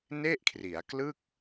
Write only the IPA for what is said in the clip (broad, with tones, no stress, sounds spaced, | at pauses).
n e˥˩ ʔ kʰ r i˩˦ a̯ k l ɯ˥˩ k̚